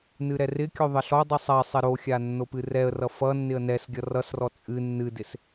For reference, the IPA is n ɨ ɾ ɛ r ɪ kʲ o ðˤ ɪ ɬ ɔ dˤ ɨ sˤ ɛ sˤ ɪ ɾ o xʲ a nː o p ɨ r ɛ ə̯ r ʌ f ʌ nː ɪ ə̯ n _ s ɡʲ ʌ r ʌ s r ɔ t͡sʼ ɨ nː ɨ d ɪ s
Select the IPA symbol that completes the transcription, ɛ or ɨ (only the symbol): ɛ